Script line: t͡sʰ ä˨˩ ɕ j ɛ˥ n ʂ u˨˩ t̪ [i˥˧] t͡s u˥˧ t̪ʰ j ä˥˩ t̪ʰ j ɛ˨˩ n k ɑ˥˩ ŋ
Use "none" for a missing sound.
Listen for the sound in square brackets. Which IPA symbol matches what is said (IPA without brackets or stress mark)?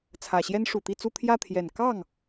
i˥˧